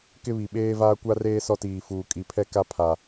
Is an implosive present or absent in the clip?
present